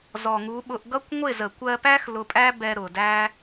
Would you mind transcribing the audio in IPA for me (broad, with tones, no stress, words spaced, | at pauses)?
zɔ˨ŋu˨˦ ɓʊ˧ʔɡʌ˦kʷ ŋʷɪ˦˨zə˨kʷɜ˧pæ˦x lʊ˧pʼæ˦ bɛ˧ɾʊ˨dæ˦